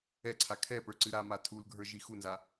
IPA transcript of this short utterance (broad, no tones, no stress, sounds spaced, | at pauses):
ɛ ǀʰ a kʰ ɛ p ə˞ ǀ ɨ ɾ a m a tʰ u l ɡʱ ə˞ ʒ i x u n z a